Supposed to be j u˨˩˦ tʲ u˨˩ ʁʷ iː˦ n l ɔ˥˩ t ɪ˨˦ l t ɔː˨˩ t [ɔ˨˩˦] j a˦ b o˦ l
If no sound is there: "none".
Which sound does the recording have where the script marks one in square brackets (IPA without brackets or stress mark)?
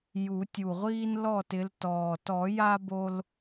ɔ˨˩˦